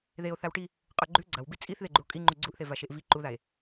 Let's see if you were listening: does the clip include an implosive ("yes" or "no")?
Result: no